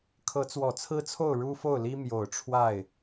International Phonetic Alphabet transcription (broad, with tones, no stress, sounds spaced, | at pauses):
kʰ ɤ˧˥ t͡s w ɔ˨˩ t͡sʰ ɹ̩˥ t͡sʰ o˥˩ ʊ̯ ɻ u˥ f o˥˩ ʊ̯ l i˥ m j o˨˩ ʊ̯ ʈ͡ʂʰ w a˥˩ ɪ̯